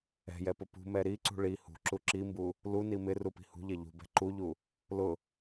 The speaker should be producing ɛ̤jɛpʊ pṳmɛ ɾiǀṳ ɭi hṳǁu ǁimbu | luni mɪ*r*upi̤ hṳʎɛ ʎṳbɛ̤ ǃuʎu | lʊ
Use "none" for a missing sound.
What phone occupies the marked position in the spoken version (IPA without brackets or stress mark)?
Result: r